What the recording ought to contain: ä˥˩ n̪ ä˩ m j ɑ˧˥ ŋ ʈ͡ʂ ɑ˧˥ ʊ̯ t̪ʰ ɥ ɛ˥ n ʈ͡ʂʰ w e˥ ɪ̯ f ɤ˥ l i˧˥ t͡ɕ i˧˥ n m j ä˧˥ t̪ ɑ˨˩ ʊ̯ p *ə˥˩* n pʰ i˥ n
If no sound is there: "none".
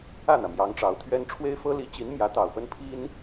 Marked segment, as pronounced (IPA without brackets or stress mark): ə˥